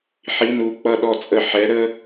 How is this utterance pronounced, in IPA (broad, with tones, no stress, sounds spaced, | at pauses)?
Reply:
ħ i˧˥˧ n u˨˥ k͡p ʌ˧˥˧ ɗ ɔ˦˨ t͡sʼ ə˦˨ ħ ɛ˨˥ ɾ ə˥